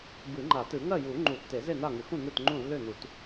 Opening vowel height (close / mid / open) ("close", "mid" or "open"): close